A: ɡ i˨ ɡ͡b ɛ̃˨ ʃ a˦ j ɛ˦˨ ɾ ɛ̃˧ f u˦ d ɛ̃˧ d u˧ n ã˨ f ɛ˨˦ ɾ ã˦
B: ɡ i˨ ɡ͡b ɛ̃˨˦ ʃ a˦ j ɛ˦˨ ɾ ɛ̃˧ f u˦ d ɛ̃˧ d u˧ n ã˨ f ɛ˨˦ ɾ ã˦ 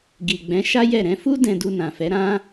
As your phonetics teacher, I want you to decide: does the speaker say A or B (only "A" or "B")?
B